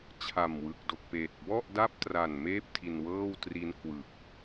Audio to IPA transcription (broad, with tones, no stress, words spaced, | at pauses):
t͡ɕʰa˨˩mwɯ˨˩k̚do˨˩k̚peː˨˩t̚ bɔ˥˩ʔ da˥˩p̚tra˨˩nmeː˦˥p̚ tʰi˧nwɤː˥˩w tri˦˥n kwɯ˨˩k̚